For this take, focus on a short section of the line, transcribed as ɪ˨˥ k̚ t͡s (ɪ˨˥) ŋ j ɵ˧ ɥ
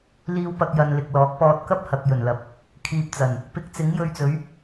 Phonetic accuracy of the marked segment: correct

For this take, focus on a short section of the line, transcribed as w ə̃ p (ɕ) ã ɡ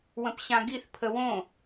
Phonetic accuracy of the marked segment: correct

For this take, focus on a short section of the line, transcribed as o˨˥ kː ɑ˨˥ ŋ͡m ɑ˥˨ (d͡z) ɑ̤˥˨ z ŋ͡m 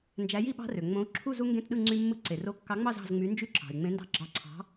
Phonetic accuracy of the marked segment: incorrect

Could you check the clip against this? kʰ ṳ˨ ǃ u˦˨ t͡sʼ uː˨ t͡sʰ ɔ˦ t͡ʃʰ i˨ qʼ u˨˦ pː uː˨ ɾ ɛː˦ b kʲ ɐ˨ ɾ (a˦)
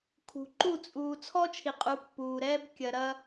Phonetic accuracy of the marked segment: incorrect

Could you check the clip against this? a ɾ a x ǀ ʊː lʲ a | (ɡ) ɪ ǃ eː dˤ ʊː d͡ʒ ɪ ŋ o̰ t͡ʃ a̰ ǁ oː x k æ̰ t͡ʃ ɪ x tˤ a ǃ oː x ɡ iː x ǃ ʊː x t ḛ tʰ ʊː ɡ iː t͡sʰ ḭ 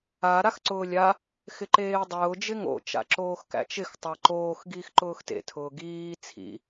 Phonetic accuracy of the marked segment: incorrect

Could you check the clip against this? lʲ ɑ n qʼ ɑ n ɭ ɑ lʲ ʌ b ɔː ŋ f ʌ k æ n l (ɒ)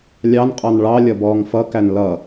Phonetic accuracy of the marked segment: incorrect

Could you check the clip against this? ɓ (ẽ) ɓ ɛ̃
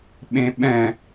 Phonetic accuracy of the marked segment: correct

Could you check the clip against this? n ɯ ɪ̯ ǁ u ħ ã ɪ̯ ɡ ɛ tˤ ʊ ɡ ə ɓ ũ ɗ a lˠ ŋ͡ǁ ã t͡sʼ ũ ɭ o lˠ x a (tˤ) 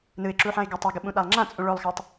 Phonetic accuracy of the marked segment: correct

